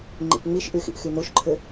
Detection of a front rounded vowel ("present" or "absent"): present